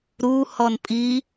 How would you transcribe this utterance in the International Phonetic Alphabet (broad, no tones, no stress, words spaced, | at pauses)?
ɾu hɔnpʼi